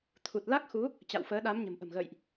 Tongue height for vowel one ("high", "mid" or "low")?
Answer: high